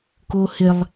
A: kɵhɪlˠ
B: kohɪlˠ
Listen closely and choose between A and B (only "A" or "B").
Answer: B